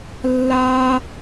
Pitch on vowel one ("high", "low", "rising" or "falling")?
high